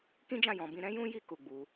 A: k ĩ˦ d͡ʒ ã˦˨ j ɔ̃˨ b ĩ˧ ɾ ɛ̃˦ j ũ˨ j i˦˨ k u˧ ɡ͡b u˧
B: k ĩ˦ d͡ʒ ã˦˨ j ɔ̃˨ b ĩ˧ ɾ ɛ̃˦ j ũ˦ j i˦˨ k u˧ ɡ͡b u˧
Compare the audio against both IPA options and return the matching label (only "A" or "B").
B